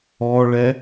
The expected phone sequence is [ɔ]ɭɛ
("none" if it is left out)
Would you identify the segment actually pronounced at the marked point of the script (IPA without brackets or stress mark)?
ɔ